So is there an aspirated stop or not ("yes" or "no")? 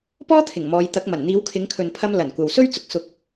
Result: yes